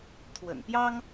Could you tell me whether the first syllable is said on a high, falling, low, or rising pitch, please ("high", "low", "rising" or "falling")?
low